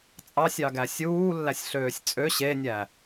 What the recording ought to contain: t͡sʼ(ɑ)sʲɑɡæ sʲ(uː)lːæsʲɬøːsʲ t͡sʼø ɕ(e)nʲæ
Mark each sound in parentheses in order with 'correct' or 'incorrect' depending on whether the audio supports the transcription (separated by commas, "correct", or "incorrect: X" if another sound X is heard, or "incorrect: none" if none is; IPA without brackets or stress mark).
correct, correct, correct